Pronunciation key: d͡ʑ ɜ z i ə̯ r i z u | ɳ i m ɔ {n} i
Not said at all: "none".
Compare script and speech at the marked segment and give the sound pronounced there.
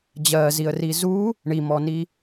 n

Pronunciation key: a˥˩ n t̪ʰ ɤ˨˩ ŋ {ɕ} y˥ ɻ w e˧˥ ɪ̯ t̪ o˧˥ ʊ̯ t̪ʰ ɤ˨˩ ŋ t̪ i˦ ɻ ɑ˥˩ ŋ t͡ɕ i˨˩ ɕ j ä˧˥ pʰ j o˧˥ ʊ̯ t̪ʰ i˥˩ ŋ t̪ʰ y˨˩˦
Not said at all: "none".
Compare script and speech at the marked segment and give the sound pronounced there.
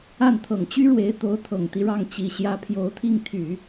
t͡ɕ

